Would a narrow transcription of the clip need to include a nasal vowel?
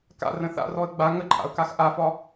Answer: yes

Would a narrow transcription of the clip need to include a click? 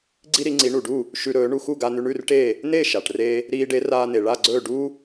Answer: yes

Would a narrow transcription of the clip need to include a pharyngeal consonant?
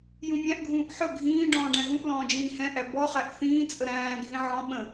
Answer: yes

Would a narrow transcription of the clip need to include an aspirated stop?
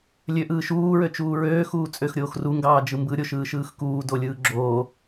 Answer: no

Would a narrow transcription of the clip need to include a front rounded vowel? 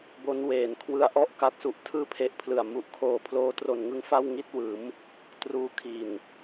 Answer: no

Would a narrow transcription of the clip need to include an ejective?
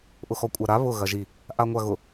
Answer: yes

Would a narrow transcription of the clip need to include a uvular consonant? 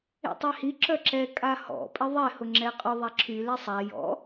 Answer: yes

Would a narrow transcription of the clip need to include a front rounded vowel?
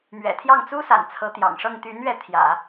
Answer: yes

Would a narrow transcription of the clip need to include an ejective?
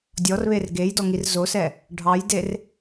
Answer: no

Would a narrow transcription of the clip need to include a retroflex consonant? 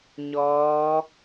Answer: no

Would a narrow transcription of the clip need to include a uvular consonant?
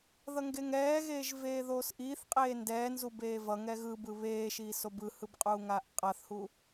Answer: yes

